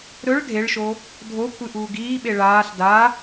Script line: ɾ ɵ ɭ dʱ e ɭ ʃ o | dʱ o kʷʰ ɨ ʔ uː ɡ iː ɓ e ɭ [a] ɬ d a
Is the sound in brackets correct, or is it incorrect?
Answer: incorrect